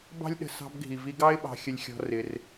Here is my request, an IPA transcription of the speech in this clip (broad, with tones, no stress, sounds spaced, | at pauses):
b ɑ̤˦ lʲ ɗ ə̤˧ s ɑ̤˧ b ɡʱ i˨ v i˧ ɡ ɑ˦ ɪ̯ ɓ ɑ̤˧ xʲ ə˧ lʲ xʲ ɔ̤˧ r ɪ˧ r